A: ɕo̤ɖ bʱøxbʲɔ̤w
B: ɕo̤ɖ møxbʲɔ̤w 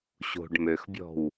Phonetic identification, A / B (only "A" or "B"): B